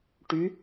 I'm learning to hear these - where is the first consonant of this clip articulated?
retroflex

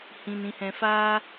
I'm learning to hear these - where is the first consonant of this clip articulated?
throat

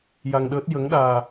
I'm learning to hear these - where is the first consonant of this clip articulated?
palate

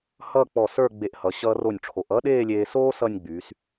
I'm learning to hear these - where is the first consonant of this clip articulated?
throat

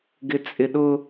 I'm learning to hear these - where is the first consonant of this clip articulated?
velum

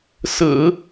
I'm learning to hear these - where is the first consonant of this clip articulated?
tongue tip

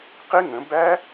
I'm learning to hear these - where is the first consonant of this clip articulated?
uvula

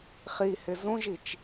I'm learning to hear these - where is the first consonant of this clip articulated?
uvula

